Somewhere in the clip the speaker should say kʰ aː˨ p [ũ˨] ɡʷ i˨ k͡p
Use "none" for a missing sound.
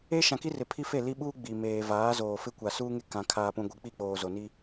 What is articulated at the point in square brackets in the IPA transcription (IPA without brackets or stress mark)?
ũ˨